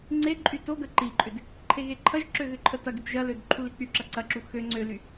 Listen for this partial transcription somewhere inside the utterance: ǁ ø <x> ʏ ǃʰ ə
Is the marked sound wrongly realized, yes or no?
yes